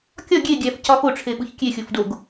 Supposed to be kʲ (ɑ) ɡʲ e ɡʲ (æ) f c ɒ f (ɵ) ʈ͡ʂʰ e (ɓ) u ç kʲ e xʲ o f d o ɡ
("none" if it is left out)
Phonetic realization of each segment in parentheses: ɒ, æ, o, ɓ

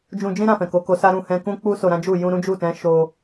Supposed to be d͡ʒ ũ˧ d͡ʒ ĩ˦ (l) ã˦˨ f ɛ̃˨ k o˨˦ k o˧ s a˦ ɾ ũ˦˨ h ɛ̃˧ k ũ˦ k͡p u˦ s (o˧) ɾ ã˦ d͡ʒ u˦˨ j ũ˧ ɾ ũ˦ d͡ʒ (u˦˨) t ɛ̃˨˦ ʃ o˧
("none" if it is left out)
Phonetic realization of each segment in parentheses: ɾ, o˧, u˦˨

